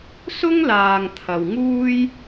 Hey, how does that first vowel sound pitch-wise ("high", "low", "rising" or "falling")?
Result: high